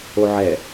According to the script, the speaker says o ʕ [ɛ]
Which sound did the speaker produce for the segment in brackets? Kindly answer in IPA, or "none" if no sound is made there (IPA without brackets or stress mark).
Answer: ɛ